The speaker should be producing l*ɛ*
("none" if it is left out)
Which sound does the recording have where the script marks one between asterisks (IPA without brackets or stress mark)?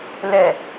ɛ